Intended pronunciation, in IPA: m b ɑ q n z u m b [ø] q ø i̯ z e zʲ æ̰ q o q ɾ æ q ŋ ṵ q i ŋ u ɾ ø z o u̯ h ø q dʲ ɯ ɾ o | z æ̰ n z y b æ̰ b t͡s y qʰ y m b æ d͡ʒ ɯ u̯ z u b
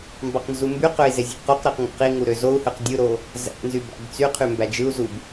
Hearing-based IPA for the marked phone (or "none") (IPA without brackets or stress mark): y